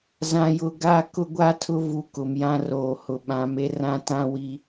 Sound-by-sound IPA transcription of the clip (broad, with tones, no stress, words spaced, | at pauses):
zã˨jʊ˨ ɡa˦˨ kʊ˦ɡʷa˦tʰʊ˦ vu˨ kʊ˨mjã˦roː˨hʊ˨ ɓã˨˦m e˦rã˦ tã˦wi˦